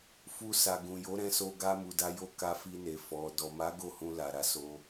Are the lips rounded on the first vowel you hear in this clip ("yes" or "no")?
yes